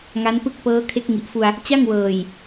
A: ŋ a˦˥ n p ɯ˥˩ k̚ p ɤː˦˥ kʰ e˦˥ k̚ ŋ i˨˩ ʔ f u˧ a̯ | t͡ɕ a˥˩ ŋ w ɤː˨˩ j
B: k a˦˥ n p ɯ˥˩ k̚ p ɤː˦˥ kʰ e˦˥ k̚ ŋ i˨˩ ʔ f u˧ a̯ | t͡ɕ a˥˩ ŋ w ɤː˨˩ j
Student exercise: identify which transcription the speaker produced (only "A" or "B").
A